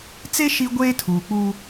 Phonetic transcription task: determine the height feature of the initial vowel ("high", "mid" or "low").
mid